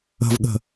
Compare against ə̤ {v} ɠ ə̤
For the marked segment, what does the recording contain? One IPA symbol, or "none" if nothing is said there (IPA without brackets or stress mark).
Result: v